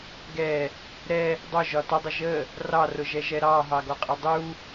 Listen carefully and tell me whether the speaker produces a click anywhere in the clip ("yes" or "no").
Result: no